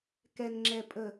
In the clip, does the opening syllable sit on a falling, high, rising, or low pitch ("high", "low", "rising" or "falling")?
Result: low